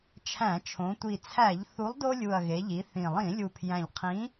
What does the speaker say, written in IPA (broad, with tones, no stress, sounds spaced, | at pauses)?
t͡ʃʰ æ̃˧˩˧ t͡ʃʰ õ˩˧ tʷ i˨˩ t͡sʰ æ˧˩˧ ʎ θ u˨˥ lˠ d o˦ lʲ u˨˩ ɐ̯ ɣ e˩˧ ʎ i˩˧ θ ĩ˨˩ lˠ ĩ˧˩˧ lʲ u˨˩ pʰ j æ̃˨˩ ʎ qʰ ĩ˨˥